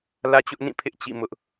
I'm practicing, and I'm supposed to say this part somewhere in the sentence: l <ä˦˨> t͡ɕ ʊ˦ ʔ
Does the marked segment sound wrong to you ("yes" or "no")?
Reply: yes